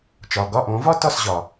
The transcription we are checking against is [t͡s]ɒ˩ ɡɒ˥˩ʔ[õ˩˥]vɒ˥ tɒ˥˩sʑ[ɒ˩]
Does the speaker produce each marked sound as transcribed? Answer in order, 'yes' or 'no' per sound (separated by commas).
no, yes, yes